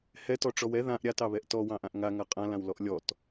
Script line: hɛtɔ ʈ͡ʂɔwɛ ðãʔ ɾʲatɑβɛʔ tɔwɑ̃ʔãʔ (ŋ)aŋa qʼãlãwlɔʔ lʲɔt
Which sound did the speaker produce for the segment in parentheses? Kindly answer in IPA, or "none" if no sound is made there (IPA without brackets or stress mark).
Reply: ŋ